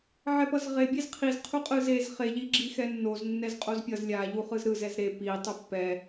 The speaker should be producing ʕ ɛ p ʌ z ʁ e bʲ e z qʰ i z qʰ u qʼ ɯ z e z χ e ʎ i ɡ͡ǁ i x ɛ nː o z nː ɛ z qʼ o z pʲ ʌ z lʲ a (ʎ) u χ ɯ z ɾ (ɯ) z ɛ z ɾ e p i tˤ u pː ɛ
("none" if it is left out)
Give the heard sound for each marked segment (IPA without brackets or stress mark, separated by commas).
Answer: ʎ, ɯ